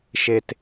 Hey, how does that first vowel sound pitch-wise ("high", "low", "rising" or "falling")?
low